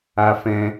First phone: a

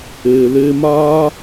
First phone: eː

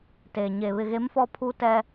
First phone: t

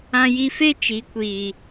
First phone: ã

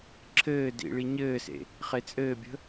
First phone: ǁʰ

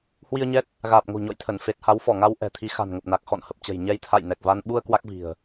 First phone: h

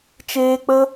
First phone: t͡ʃ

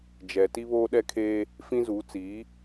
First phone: d͡ʒ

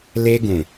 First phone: l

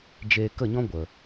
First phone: d͡ʒ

